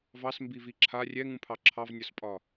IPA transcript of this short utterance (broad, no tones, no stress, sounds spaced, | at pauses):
v ɑ s m b i v i ǁʰ a rʲ ɛ ŋ ũ pʰ ɑ ǁʰ ɑ v nʲ ɒ s pʼ ɒ